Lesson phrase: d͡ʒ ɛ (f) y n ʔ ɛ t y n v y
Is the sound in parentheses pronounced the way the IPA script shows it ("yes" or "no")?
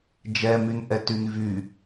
no